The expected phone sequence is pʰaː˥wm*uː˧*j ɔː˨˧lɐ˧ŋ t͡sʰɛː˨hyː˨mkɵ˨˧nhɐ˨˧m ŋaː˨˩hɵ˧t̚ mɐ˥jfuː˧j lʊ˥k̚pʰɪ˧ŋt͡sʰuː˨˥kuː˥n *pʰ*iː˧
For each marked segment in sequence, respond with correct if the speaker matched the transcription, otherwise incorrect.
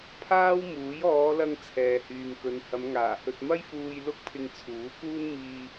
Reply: incorrect: uː˨˥, incorrect: m

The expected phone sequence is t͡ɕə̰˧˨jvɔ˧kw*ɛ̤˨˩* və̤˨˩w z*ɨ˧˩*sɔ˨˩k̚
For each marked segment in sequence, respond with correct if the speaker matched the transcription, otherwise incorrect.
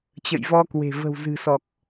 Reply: incorrect: e̤˨˩, incorrect: ɨ̤˨˩

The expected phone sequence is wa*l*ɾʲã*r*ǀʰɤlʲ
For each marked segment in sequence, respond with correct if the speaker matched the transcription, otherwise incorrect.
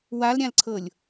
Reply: correct, incorrect: l

